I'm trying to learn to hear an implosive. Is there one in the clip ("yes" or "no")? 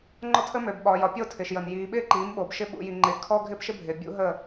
yes